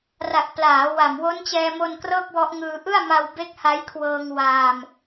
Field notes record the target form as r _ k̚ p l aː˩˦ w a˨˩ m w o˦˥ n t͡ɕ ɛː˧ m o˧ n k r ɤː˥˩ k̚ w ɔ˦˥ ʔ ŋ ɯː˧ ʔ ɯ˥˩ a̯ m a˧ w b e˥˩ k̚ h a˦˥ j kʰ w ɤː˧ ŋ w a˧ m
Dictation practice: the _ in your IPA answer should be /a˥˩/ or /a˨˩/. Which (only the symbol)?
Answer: a˨˩